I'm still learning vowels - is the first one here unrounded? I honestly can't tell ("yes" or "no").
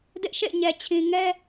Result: yes